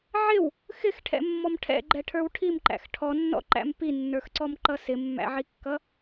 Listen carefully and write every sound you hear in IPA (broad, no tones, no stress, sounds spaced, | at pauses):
ʕ ɪ w | x ɪ x ʈʰ ɛ̰ mː ɔ m ʈʰ ɛ̰ ɡ͡ǃ ɛ ʈʰ ə˞ w ʈʰ i m ǃ æ̰ x ʈʰ ɔ nː ɔ̰ ǃ æ̰ m p i nː ə˞ x ǀ ɔ m ǃ ʌ s ɪ mː æ̰ ʕ i kː ʌ